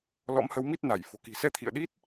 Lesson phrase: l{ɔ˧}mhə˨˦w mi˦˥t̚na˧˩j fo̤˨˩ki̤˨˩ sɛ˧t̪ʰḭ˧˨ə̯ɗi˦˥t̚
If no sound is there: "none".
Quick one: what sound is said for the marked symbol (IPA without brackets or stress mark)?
ɔ̰˧˥